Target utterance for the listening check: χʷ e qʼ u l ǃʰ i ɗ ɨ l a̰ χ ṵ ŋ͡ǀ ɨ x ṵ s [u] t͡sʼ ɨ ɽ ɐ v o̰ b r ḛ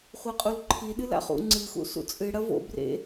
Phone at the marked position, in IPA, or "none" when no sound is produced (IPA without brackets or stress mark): ṵ